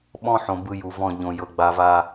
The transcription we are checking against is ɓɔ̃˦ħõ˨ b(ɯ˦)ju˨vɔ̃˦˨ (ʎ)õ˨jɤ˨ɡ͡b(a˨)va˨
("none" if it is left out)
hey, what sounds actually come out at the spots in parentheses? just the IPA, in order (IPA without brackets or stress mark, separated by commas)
ɯ˦, ʎ, a˨